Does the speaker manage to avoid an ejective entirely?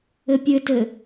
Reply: yes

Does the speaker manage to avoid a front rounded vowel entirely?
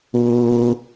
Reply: yes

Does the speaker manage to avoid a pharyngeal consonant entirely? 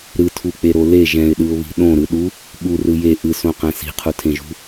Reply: yes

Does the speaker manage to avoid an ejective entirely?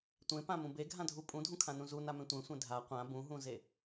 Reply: no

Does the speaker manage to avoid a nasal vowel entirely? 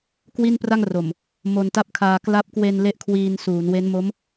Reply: yes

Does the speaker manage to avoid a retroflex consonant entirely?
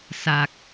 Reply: yes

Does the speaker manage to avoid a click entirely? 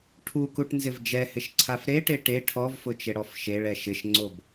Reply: no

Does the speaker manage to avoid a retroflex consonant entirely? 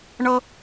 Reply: no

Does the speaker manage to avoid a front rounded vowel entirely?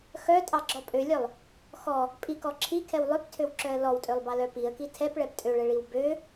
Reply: no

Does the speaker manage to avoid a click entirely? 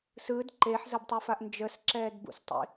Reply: no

